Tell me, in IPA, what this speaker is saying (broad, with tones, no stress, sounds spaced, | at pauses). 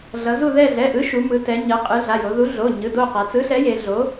ɮ ʌ˩˧ z u˦˨ ð ɛ˦˨ ɮ ɛ˩˧˩ ʔ ɯ˨˥ ʃ u˩˧ m ɯ˩˧ t ɛ˩˧ ɲ ʌ˩˧ qʼ ɯ˩˧ ɮ a˩˧˩ j o˩˧ ð u˨˥ ɮ o˩˧˩ ɲ ɯ˩˧˩ d o˦˨ q a˩˧ t͡s ɯ˨˥ ɬ ɛ˨˥ j e˩˧ ɮ o˨˥